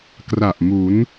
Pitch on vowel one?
low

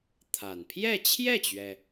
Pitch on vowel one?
low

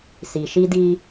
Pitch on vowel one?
low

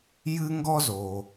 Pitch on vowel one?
high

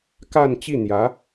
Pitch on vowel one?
falling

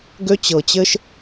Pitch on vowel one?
high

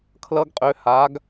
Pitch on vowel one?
high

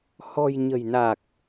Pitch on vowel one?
low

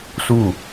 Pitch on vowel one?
falling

